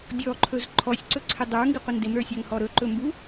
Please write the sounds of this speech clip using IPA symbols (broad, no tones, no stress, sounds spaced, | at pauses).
dʲ ɔ ǃʰ ɵ z ǃʰ ɔ sʲ ǀ ɵ ǀʰ ɪ dˤ ə˞ ŋ ɡ ɪ qʷ ɪ n d ɪ m ɾ ə˞ sʲ a ŋ h ɔ ɾ ɵ ǃ ɵ m b u